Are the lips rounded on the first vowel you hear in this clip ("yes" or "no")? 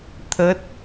no